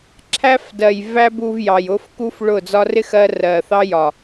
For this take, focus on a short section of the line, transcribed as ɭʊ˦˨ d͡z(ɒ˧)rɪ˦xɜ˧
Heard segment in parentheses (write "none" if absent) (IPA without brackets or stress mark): ɒ˧